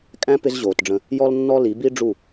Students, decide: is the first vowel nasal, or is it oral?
nasal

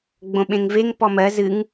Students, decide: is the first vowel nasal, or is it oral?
nasal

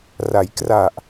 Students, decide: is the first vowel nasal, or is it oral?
oral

